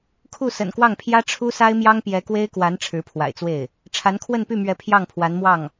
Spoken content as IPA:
kʰu˥˩sə̰˨˩nkwɑ˥˩ŋpʰjä˥ ʈ͡ʂʰu˥sa˥ɪ̯ mjɑ˥ŋpjɛ˧˥kwe˥ɪ̯kwa˧˥n ʈ͡ʂʰɻ̩˧˥pʰwa̰˨˩ɪ̯t͡swe˥˩ɪ̯ | ʈ͡ʂʰa˧˥nkʰwə˥˧npy˥˩mɥɛ˧˥ pʰjɑ˥˩ŋpʰwa˧˥nmwɑ˥˩ŋ

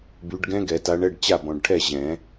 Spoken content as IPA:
by˨˦ɖɡɛ̃˦˥ ɡɛ˨˩˦ta˨˦ɳɛ˧˥˧ɖ t͡ɕa˥˨bɔ̃˨ɖʈʰɛ˥˨ ʑɛ̃˨˩˦

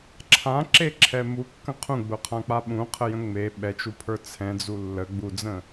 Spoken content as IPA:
ǁʰãǁeǁʰɛ mukːə̃ qʰũɡ͡bʊqʰãk͡pa ɓũqʰəjə̃ ŋ͡me ɓɛt͡ʃupʰə˞ t͡sʰɛ̃d͡zu lːə ɡ͡bud͡zə̃

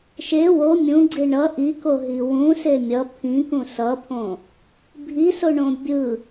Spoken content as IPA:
ʃe wo mʲũɡ͡ǀi ɳʌ ʔikoɦi wũse mʲʌ pʰĩkũ sʌpʰõ | bʱisoɳõ bʲɯ

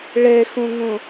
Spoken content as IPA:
ɭɛxõŋõ

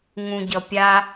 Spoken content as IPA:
ŋũɟʌpʲa

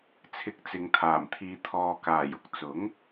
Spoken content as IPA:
t͡sʰɪ˨˥k̚t͡sɪ˨ŋt̪ʰaː˨˩m t̪ʰiː˨t̪ʰɔː˨ kaː˨˩j ʊ˨k̚t͡sʊ˨˥ŋ

